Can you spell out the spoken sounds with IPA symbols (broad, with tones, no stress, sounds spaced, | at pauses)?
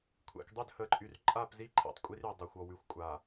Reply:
kʷʰ ɛ̰˨ k dˤ ø˦˨ d h ə˨˦ ǃʼ y˨ r ǃʼ a˦˨ p z i˦ ǃʰ ɛ̰˨ tˤ kʷʼ i˦ r y˨ dˤ a˨ xʷ ɔ˨ w y˨ xʷ kʷʼ a˨